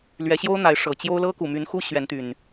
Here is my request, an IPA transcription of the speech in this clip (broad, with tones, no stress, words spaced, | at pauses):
lɥɛ˨˦ ɕjo˦ʊ̯n̪a˨˦ɪ̯ ʂɤ˨˩t͡ɕjo˦ʊ̯ lɤ˦ku˨˩my˨˦nxu˦ ɕɥɛ˨˦nt̪y˨˩n